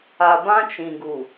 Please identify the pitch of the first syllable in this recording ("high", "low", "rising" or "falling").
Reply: low